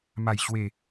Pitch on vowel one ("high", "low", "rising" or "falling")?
low